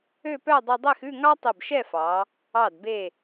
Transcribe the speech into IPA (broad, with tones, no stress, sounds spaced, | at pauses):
ø˥˧ p œ˥˧ dˤ i˧ dˤ e˥˧ x ʉ˥˧ ŋ ɑ˥ tˤ i˧˩ b ʃ ɛ˥˧ f ɑ˩˧ | ɑ˧˩ d b e˧˩